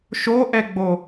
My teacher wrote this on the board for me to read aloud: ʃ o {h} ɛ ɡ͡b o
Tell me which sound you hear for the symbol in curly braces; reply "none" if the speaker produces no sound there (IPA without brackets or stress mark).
ʔ